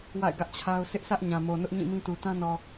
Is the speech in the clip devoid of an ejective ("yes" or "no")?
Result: yes